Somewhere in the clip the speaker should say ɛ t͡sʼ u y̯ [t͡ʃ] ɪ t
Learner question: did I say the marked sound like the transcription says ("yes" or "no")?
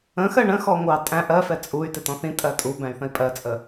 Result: no